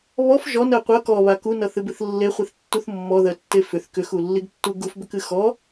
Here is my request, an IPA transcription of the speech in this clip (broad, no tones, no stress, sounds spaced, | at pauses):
β ɔ f ʒ ɔ n ɜ qʷ ʌ k ɔ β a k u n ʌ θ ɨ b ɨ θ lː e χʷ i θ tː u θ mː ɔ ð ɜ tː e f ʏ θ k ʏ x u lː i ɡ tː u ɡ u f b ʏ k ɨ x ɔ